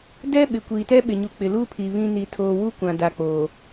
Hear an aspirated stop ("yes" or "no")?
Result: yes